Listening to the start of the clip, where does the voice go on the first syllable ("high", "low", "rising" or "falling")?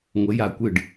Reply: rising